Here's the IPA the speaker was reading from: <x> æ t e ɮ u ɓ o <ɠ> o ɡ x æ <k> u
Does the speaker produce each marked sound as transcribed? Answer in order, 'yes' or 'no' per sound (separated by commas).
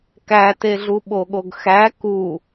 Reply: no, yes, yes